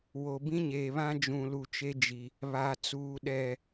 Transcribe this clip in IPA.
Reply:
w o˨ b ĩ˦ ɲ eː˨ β ã˦ d͡ʒ ũ˨ l u˨ t͡ʃ e˦ d͡ʒ i˨ | β a˨ t͡s uː˨ ɗ ɛ˨

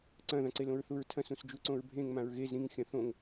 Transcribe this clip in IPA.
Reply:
ǀ ɐ̃ ð ã ǀ e l õ ɹ θ u ɹ tʰ ɐ̃ s ũ s d͡ʒ u ǀ õ ɹ bʱ ẽ ŋ m ã ɹ ɣ e z ɾ ĩ ŋ xʲ ɐ̃ θ õ ŋ

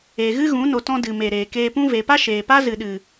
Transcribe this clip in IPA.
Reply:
e˨ ɣ ɨ˦ ɣ ũ˨˦ n o˧ t ɔ̃˦ d ɨ˨ m e˨ ɾ eː˨ k eː˧ p ũ˦ v e˨ p a˦ ʃ eː˨ p a˦ z ɨ˨ ɗ ɨ˨

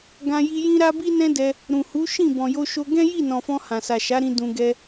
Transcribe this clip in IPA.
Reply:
ɡ ã˧ j i˧ j ĩ˦ ɾ a˦ b i˦ n ɛ̃˦ d ɛ˧ | ɾ ũ˨ h u˨˦ ʃ ĩ˦˨ b ɔ̃˨ j o˧ ʃ o˧ ɡ ɛ̃˦ j i˦˨ n ɔ̃˨ f ɔ̃˧ h ã˨ s a˨ ʃ a˨˦ ɾ ĩ˧ d ũ˨ ɡ ɛ˧

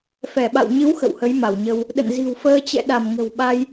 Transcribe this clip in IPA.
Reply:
f ɛ˧˩ ɓ a̰˧˨ w ɲ ɨ˨˦ w x ə̰˧˨ w h ə˨˦ j m a˧˩ w ɲ ə˧ w | ɗ ə̰˧˨ n z i̤˨˩ w f əː˧ t͡ɕ ɛ̰˧˨ ɗ a˧˩ m ŋ ə̤˨˩ w ɓ a˧ j

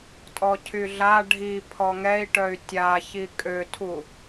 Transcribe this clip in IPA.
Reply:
tʼ ɔ cʰ y ɮ a ɖʱ i pʰ ɔ ŋ ɛ i̯ ʈ œ y̯ tʲ a ç i kʼ ø tʰ u

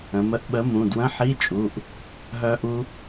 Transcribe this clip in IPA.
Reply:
ə̃˩˧ m ə˨˥ ʔ ɓ ə˨˥ m ũ˩˧˩ d w ə̃˧˥˧ ħ i˧˥˧ t͡ʃʼ u˩˧˩ ʔ | ɦ œ˦˥ ʔ u˦˥

